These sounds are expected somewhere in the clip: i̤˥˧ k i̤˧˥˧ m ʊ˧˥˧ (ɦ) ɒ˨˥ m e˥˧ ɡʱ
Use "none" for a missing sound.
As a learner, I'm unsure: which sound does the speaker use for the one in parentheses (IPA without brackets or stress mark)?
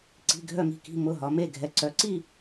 ɦ